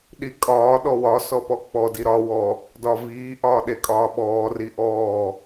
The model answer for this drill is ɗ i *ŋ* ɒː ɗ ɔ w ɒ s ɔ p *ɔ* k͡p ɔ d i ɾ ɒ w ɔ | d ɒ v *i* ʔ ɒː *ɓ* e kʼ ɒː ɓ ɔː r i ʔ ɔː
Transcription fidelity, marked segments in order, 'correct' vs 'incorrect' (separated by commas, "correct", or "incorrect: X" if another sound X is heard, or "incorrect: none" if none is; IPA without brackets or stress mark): incorrect: kʼ, correct, incorrect: iː, incorrect: ɗ